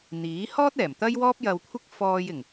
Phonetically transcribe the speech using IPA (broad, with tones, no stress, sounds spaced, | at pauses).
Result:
n̪ iː˨˥ h ɔː˥ t̚ ɛː˨˩ m t̪ ɐ˥ j w ɔː˥ p̚ j ɐ˧ w kʷʰ ɪ˥ k̚ f ɔː˧ j ɪ˨˩ ŋ